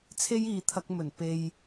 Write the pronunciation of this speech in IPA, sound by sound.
t͡sʰe˥jiː˨t̪ʰɐ˧k̚ mɵ˨˩n pe˨j

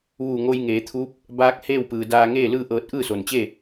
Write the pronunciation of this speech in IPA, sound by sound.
ʋuː˧˩ŋo˧j ŋeː˩˧t̪ʰuː˧˥p̚ | baː˧˥k̚ heː˥˨wpɯː˩ daː˧ŋeː˥˨lɯː˥˨ʔɤː˧t̚ ʔɯː˥˨so˩nt͡ɕe˥˨

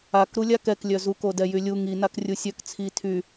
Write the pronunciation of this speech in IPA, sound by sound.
ak ɾulʲakɛk lʲœzu kodɛjylʲu ŋi nakrʲusʲœk t͡sʰi tʰy

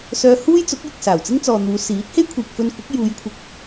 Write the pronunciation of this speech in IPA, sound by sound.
sœː˧huː˥jt͡sʊ˨˥k̚ jɪ˨k̚saː˨˩wt͡sɪ˥ŋt͡sɔː˨ n̪uː˨˧siː˨˥t̚he˥j kʷʰiː˨k̚fɵ˧nkʷɪ˨˥k̚ juː˨˧jkʷʰɪ˨k̚

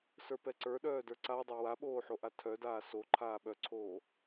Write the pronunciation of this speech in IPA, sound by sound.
sə˞pɛǀə˞ɗœː də˞ǀadˤo waɓoː ħoʔatʰœdaː so ǃʰaːɓœǀʰoː

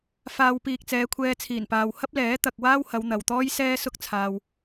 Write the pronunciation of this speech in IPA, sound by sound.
faː˨w piː˨k̚t͡sɛː˨˧kʷʰɛː˧t͡sʰiː˨˩n paː˨w hɐ˥p̚lɛː˨˥ t̪ɐ˨k̚waː˥whɐ˨˧w n̪ɐ˨wt̪ɔː˥jsɛː˥ sʊ˥k̚t͡sʰaː˧w

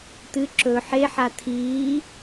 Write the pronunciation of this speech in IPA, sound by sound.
t̪ɨ ǁɵ ħeħa t̪ʰiː

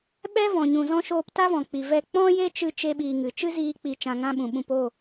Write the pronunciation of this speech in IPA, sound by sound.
ɓɛ˦ vɔ̃˨ɲũ˨zɔ̃˦ ʃoː˧pta˦vɔ̃˨ k͡pi˨vɛ˧ k͡pɔ̃˦je˦t͡ʃɨ˧ t͡ʃe˦ɓiː˧ŋɨ˨ t͡ʃɨ˦ziː˧ k͡pi˧t͡ʃã˧ŋã˦ɓũ˨ ɓũ˧p o˦˨

